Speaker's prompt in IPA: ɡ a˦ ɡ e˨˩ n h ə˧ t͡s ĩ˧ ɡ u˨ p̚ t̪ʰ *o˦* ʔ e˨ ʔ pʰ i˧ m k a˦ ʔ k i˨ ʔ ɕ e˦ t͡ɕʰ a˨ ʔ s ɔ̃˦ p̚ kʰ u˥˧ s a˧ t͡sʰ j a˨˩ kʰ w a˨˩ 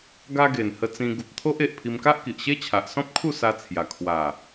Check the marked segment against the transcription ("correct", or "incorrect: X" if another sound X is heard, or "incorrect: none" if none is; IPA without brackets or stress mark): correct